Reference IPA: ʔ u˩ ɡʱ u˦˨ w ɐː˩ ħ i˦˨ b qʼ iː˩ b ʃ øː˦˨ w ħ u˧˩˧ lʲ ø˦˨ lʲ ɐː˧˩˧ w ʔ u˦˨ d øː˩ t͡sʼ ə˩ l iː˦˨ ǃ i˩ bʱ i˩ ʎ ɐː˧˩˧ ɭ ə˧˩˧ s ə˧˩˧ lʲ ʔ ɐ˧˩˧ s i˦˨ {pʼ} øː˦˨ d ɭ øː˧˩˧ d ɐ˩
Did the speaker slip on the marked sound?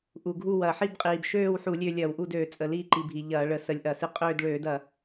yes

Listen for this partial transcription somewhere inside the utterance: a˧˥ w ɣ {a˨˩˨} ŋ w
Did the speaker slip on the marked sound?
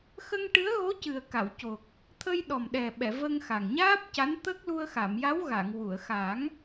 no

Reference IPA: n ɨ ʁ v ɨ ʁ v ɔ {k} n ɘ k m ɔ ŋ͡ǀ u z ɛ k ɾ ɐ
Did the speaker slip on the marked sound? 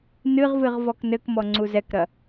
no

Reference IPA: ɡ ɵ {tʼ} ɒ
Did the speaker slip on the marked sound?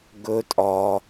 no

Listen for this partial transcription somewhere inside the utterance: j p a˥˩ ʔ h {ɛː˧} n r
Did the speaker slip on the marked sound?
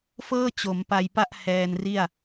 no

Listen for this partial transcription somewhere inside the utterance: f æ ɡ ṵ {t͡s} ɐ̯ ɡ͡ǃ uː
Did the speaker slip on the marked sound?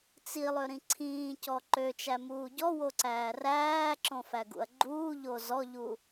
yes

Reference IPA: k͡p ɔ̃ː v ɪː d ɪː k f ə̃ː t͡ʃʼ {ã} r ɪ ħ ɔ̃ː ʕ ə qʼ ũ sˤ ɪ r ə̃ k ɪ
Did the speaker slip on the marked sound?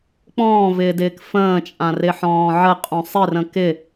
no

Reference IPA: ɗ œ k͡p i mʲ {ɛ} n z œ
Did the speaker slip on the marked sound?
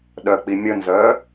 yes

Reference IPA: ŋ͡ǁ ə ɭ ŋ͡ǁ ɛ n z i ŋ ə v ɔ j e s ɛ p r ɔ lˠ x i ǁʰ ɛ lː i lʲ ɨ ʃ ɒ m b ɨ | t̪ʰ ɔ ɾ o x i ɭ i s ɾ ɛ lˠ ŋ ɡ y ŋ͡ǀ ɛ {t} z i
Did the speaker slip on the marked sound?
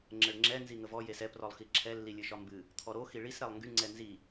yes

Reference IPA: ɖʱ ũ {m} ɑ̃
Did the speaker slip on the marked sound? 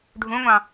yes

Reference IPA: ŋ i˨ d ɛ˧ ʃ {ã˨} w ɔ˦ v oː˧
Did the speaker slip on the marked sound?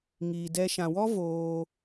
no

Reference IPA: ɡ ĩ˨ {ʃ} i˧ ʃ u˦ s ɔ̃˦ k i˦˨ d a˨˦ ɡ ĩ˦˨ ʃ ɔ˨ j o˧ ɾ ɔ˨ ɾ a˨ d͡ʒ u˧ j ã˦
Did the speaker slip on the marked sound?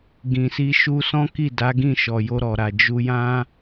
yes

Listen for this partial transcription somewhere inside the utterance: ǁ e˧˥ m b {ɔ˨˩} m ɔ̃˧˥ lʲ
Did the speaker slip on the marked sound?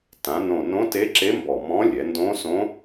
no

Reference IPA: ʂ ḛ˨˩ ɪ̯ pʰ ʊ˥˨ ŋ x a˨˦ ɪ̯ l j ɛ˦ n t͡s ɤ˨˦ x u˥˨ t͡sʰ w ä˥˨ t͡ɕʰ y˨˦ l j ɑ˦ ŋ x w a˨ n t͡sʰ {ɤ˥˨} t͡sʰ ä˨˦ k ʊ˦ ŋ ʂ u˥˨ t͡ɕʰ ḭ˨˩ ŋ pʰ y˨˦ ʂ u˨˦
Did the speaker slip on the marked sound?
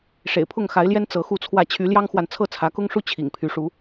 no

